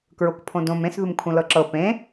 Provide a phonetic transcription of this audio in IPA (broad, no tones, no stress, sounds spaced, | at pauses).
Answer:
k ɹ o k pʰ õ d õ m ẽ s ð u m kʰ ũ l ɤ ǁ ɤ p ẽ